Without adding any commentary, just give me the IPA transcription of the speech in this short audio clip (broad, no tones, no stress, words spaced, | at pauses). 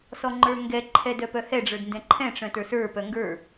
sɔŋ͡ǃə˞ŋɡɛǃʰɛ dœpœhɛɖ͡ʐə˞d ndɛ̃ǃʰɛ̃ʈ͡ʂœ̃ tə˞sə˞pœ ŋɡə˞